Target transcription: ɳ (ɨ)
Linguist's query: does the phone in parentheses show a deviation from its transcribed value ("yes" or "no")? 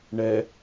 yes